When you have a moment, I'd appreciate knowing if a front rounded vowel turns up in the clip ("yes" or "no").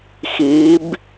no